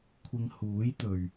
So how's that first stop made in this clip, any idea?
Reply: aspirated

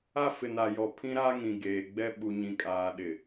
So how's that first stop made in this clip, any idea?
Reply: aspirated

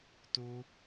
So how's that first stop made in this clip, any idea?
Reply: plain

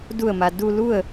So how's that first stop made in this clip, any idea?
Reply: plain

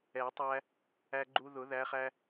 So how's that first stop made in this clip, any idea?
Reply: plain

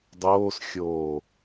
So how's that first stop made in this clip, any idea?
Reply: plain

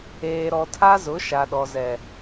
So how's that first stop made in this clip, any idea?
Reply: aspirated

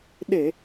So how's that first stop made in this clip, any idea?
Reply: implosive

